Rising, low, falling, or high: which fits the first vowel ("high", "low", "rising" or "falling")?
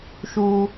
high